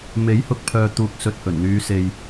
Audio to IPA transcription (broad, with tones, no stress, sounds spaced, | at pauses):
m e˨˥ j h ʊ˨ k̚ pʰ œː˨ t̪ uː˨ k̚ s ɵ˧ t̚ h ɵ˨˩ n n̪ yː˨˧ s e˨ j